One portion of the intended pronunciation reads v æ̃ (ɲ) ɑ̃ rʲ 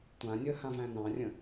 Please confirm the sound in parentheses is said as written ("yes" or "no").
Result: no